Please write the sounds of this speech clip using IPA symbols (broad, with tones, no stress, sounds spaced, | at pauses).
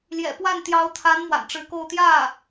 l j ɛ̰˨˩ p w a˥˩ n t̪ j ɑ˧˥ ʊ̯ t̪ʰ a˧˥ n m w a̰˨˩ n ʈ͡ʂ ɻ̩˧˥ k o˥˧ ʊ̯ t̪ j ä˥˩